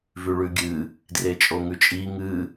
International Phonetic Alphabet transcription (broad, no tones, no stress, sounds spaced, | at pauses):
v ʉ ɭ ʉ ɡʲ ɨ | d r e t͡ʃʼ o ŋ ʉ t͡ʃʼ i ŋ ɨ